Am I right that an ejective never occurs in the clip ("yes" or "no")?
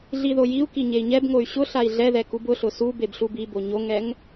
yes